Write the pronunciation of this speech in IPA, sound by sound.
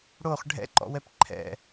ɽ o χ ɖʱ ɛ̰ ǃ ɔ̰ w ɛ p ǃʰ ɛ̰

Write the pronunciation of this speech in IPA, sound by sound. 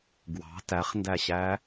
ɡ w ɑ̤ t æ χ n d æ ɕ æ

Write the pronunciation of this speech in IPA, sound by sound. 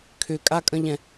kʰ ʏ kʼ a kʼ ə̃ ʎ ɛ̃

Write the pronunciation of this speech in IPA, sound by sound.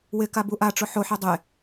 w ɪ k a b u ʔ a ʈ͡ʂ ʊ ħ o ħ i dˤ e

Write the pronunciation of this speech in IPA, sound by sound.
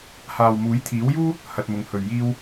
h aː˨ w m uː˨˥ j t̪ʰ iː˨˥ w j uː˥ | h ɐ˧ t̚ m ʊ˨˧ ŋ h ɵ˨˩ ɥ j iː˥ w

